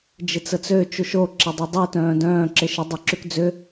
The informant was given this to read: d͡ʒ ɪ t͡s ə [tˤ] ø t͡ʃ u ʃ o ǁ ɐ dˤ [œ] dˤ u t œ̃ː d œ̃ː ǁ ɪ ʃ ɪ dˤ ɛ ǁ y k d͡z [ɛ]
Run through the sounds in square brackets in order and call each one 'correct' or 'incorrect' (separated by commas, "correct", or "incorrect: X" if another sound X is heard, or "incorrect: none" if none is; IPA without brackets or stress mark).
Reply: incorrect: t͡s, correct, incorrect: ʏ